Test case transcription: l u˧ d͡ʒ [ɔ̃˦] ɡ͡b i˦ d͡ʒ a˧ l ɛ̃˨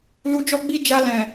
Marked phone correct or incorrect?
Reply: incorrect